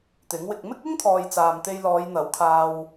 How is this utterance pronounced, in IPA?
t̪ ɪ˨˥ ŋ w ɪ˧ k̚ m ɪ˥ k̚ ɪ˥ ŋ t̪ʰ ɔː˨ j t͡s aː˨ m t̪ e˧ j l ɔː˨˧ j n̪ ɐ˨˥ w kʰ aː˧ w

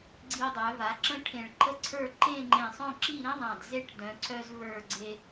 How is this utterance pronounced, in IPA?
ɡ͡ǀ i˧ dˤ œ˩˧ v a˩˧ ǁ ə̃˥ ʈʰ ẽ˧˩ ɭ ǃ ə˥ ǀʰ ə˞˥˧ ǃ ẽ˥˧ ŋ͡ǃ ẽ˧˩ sˤ œ̃˥˧ ǁ i˥˧ ɾ ĩ˥ ðˤ ã˧˩ d z e˥˧ ʈ d œ̃˩˧ ǀ œ˧ z v ə˞˧˩ ɡ͡ǀ e˧

